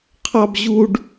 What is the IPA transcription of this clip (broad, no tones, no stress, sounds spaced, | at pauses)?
qʰ ɑ b ʑ u ɖ